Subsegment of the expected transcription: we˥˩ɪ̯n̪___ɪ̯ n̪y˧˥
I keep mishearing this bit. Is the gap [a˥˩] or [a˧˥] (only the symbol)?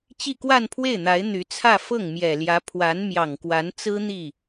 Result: a˧˥